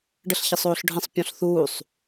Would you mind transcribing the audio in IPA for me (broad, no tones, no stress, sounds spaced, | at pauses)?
ɖ ə ɬ ç ə sˤ oː ɬ ɖʱ ə̃ sˤ pʲ ɔ̃ ɬ θ uː sˤ